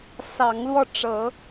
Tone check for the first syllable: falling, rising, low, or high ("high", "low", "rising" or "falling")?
rising